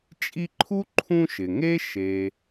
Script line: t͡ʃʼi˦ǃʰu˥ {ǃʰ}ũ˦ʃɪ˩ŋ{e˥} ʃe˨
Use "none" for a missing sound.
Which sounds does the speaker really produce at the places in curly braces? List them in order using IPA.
ǃʰ, e˥

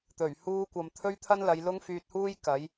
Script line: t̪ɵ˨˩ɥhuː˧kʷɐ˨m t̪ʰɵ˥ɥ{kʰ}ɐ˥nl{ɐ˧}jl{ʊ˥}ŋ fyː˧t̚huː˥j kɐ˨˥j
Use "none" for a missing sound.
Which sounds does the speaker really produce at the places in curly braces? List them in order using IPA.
t̪ʰ, ɐ˨˧, ʊ˥

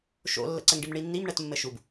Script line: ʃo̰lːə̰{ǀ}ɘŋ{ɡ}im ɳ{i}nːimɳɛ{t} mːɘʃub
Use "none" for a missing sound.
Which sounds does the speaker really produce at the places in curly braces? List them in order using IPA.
ǀ, ɖ, i, t

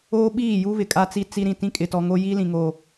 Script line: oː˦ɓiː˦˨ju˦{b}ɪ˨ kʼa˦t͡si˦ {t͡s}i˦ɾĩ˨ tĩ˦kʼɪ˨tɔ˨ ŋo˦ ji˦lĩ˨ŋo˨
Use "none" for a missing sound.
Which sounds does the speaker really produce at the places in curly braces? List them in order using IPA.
β, t͡s

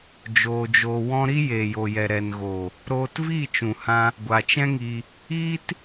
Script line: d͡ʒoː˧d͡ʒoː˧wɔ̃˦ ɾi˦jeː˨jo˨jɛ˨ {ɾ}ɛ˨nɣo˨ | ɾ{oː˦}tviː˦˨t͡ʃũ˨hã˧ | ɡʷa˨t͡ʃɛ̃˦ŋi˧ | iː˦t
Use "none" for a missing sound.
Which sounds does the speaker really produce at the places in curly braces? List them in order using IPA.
ɾ, oː˧

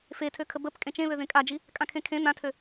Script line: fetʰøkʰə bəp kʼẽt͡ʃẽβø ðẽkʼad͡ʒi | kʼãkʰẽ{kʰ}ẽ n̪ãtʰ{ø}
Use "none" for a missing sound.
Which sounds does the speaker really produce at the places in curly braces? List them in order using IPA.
kʰ, ø

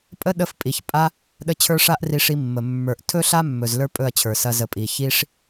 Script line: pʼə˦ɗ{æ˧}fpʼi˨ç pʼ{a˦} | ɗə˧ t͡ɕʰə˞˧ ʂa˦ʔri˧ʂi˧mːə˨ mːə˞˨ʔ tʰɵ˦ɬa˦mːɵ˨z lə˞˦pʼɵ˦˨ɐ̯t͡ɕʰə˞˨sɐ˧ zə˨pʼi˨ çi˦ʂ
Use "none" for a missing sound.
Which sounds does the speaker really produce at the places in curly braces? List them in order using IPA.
ə˧, a˦

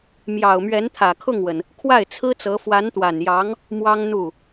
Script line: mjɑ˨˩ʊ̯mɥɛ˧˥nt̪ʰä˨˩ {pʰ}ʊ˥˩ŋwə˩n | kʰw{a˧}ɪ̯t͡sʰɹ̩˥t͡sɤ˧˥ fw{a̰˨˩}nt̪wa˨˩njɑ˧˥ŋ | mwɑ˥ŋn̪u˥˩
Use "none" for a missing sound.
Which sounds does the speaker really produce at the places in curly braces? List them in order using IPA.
kʰ, a˥˩, a˧˥

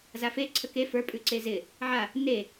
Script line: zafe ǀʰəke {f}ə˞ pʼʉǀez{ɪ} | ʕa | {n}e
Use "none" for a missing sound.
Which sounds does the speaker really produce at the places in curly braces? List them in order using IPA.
f, ɪ, n

